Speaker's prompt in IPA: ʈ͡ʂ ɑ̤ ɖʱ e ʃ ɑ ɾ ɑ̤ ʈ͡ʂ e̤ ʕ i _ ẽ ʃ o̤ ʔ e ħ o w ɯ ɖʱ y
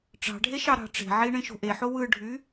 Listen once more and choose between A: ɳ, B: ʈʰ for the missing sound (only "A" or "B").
A